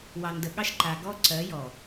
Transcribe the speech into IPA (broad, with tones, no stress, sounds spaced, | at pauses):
w ɑ˨ n d ə˨ ɠ ɑ˦ ʃ ǃ a˨ ɡ ɔ˦ ǀ ɜ˨˦ j ɔ˨